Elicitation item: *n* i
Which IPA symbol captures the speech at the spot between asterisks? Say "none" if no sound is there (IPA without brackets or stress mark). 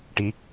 ʈ